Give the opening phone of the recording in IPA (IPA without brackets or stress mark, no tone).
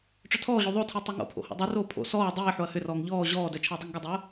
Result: ʈ͡ʂ